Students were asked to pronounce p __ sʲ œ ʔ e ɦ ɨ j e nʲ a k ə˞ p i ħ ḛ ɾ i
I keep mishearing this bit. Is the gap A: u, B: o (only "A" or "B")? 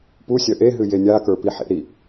A